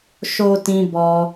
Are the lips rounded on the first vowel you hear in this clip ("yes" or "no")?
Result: yes